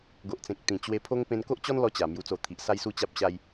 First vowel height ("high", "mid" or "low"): mid